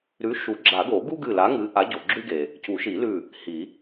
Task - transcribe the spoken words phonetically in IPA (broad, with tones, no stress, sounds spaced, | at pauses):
ɾ ʉ˨˥ ʃ u˨˩˦ ɡ͡ǁ a˨˩˦ ɡ o˨˩˦ ɡ u˥ ɡ ɨ˧˩ l a˨˥ ŋ ɨ˨˥ ʔ a˨˥ ɟ o˩ ɡ͡ǁ ʉ˥ ɡ e˩ | c u˨˩˦ ʃ i˨˩˦ l ʉ˧˩ | h i˨˩˦